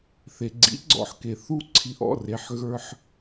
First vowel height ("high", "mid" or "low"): mid